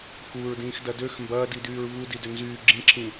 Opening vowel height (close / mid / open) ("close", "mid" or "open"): close